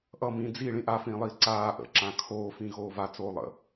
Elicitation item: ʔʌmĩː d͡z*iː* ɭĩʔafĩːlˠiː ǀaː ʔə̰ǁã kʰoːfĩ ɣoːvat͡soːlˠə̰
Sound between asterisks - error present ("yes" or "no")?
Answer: yes